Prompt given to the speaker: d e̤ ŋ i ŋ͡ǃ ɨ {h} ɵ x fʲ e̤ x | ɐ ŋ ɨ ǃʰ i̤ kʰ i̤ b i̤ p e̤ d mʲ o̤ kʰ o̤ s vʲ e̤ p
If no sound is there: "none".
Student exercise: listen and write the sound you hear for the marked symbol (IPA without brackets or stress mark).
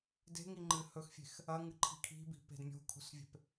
h